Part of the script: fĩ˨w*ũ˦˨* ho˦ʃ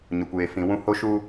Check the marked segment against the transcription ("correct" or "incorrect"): incorrect